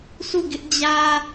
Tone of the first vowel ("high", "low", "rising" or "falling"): falling